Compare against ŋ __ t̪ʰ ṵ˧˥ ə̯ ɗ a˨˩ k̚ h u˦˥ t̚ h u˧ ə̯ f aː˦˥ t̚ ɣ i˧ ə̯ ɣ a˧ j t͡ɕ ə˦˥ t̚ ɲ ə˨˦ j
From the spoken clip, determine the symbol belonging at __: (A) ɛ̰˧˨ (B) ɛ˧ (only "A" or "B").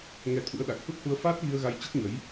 B